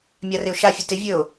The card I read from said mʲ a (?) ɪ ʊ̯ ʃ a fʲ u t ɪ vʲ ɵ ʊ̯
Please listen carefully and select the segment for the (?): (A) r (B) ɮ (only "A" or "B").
A